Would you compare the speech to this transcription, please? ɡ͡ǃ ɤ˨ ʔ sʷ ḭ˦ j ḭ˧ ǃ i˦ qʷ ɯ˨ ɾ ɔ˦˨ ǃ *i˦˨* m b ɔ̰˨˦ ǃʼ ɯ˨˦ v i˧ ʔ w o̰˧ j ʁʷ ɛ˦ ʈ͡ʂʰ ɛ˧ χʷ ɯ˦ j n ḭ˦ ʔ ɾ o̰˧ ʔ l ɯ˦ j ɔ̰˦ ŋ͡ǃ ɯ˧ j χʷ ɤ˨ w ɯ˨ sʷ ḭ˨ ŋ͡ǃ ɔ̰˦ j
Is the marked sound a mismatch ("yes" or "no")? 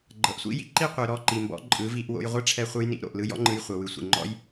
yes